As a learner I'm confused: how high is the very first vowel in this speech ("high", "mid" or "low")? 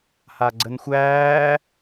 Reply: low